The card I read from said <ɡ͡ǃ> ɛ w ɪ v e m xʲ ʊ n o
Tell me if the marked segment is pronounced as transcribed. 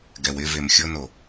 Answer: no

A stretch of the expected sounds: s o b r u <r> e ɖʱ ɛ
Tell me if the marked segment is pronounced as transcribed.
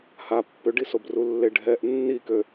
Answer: no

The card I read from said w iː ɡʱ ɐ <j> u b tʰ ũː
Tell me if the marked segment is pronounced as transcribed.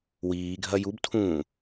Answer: yes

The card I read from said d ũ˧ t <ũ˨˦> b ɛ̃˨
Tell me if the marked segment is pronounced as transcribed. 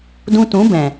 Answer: yes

